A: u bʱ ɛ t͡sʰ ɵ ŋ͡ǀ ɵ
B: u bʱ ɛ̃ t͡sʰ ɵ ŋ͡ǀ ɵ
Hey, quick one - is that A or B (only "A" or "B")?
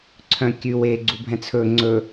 B